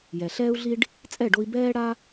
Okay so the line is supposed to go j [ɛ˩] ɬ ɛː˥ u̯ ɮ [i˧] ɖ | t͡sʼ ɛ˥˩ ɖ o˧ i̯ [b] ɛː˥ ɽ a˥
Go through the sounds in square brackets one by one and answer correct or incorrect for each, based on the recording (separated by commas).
correct, incorrect, correct